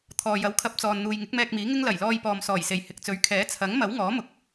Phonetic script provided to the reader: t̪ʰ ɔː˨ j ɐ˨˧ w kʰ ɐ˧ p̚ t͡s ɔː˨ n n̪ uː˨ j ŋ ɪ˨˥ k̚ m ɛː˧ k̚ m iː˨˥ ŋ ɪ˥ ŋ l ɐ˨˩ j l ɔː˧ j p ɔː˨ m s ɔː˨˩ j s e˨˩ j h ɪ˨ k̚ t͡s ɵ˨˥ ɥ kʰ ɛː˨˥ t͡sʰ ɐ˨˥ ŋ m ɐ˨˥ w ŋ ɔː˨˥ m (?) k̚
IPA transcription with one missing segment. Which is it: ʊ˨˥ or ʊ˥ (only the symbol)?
ʊ˨˥